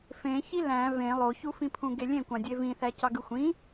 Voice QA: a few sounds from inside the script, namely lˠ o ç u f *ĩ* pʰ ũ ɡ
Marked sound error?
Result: no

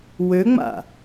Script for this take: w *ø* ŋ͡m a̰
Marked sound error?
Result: no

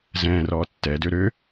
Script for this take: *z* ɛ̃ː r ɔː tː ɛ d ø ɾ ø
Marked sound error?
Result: no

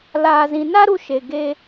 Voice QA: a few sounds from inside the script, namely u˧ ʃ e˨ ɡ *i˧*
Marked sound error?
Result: yes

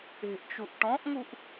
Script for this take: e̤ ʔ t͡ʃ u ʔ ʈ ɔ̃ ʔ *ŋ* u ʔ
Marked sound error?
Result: no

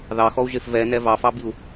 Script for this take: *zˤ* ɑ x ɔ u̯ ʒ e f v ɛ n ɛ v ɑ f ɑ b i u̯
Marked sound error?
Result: yes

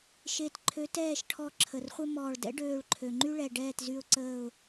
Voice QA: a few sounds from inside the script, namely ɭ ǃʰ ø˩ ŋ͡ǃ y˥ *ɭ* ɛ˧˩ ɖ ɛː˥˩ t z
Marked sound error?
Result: no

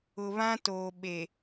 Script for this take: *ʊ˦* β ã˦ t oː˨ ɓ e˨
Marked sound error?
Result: yes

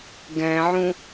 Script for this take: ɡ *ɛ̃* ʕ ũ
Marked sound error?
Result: no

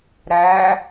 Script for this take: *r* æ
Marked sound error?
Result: yes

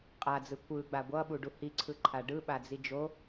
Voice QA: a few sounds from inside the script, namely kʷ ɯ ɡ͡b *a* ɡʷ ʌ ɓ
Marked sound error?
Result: no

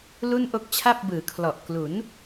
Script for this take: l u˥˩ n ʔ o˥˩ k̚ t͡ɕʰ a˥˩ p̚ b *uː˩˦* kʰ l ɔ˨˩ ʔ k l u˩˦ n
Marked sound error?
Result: yes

